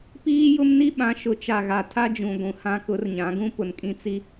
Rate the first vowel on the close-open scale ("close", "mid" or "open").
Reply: close